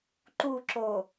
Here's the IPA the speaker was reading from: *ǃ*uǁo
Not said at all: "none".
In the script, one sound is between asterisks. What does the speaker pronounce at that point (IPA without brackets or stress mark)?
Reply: ǃ